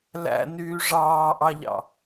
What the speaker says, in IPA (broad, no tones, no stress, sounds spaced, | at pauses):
l æ̰ n yː ʐ ɑː ʔ ɑ ʎ ɑ̰